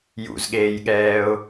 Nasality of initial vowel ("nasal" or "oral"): oral